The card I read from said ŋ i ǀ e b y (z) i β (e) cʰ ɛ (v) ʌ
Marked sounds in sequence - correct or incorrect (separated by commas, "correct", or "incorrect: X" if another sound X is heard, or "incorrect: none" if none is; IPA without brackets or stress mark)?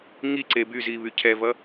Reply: correct, incorrect: y, correct